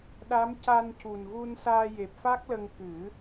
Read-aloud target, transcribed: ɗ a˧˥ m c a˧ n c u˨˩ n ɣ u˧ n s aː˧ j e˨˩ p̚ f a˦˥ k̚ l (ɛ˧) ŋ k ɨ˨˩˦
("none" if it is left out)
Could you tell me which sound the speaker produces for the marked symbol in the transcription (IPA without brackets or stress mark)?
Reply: ə˧